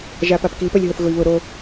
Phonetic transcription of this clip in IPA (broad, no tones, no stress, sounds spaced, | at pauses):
ʒ a p a p k i p œ lʲ ɦ o θ ɣ ʊ i̯ β ʊ ɾ o